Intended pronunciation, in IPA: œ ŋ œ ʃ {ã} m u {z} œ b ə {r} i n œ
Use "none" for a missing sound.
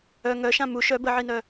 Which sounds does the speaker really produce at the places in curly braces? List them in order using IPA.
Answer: ã, ʃ, ʕ

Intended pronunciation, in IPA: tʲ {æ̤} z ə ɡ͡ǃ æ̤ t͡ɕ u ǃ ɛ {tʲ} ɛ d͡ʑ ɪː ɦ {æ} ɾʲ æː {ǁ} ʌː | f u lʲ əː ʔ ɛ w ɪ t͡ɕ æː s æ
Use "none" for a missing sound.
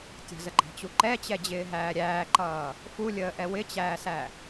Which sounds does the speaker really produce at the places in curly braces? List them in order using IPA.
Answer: ə̤, t͡ɕ, æː, ǃ

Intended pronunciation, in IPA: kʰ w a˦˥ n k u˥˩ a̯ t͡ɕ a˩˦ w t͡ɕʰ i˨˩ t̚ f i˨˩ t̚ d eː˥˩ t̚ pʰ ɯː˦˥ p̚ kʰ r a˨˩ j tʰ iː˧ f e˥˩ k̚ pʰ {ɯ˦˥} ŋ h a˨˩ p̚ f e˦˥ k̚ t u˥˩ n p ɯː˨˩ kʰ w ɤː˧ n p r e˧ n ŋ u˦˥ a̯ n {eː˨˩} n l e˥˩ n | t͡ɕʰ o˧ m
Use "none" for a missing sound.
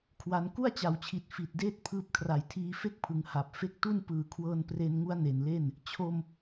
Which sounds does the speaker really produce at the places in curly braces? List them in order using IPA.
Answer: ɯ˩˦, e˨˩

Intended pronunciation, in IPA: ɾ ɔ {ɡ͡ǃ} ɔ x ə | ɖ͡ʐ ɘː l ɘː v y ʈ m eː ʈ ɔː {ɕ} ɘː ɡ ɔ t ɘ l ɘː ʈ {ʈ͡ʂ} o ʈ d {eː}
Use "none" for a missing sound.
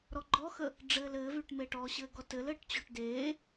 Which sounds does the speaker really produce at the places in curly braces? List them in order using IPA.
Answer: ɡ͡ǃ, ɕ, t͡ɕ, eː

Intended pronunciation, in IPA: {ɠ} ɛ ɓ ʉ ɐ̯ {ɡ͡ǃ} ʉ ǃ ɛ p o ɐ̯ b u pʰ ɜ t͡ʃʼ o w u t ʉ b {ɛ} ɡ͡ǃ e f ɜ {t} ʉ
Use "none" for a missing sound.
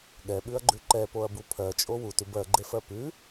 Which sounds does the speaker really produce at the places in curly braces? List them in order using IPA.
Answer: ɠ, ɡ͡ǃ, ɜ, p

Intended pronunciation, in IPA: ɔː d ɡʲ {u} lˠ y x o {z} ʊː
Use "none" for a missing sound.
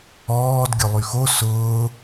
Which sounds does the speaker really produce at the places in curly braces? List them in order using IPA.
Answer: ʊ, s

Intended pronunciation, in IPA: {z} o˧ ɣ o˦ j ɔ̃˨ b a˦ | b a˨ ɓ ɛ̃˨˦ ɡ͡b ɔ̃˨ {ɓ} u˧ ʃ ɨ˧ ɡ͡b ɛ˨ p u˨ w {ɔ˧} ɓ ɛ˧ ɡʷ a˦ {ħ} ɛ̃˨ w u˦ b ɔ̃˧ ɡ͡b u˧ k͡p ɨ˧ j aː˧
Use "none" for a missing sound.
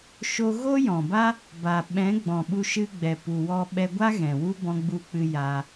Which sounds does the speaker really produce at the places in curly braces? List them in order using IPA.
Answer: ʃ, ɓ, ɔ˧, ɣ

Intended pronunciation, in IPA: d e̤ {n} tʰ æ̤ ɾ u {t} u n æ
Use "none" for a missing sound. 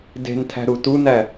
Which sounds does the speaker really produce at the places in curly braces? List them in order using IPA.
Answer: n, t

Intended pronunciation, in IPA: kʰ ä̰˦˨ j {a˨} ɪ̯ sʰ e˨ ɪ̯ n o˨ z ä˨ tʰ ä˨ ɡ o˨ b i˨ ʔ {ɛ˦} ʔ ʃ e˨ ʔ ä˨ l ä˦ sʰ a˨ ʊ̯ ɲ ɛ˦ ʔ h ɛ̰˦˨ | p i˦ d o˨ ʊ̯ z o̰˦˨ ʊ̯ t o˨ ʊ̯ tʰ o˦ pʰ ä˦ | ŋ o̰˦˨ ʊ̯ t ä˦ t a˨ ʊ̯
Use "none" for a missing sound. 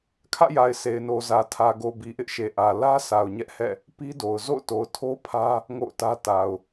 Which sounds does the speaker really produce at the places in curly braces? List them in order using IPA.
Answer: a˨, ɪ˦

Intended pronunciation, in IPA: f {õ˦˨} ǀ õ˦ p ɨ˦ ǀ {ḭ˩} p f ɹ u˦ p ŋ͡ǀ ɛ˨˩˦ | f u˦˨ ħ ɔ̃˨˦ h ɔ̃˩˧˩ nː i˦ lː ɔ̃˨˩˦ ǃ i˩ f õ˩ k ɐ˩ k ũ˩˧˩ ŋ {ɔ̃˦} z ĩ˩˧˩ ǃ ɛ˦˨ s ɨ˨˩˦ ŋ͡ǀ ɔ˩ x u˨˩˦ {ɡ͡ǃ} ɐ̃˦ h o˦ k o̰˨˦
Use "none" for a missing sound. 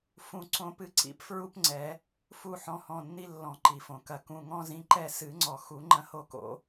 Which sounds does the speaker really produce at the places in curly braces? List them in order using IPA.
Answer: ũ˦˨, ḭ˦, ɔ̃˦, ŋ͡ǃ

